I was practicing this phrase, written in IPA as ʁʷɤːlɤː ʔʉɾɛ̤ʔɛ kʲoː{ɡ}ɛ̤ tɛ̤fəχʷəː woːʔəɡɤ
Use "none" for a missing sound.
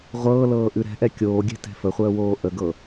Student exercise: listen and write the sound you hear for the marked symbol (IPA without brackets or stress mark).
ɡʲ